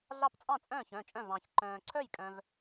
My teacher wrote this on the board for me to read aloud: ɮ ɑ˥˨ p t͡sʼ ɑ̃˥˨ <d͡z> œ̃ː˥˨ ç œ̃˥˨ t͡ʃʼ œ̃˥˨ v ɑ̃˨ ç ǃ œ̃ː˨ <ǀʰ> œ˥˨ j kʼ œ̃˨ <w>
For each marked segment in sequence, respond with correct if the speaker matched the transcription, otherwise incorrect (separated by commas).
incorrect, correct, incorrect